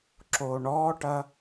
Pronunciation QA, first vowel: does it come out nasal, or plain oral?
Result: oral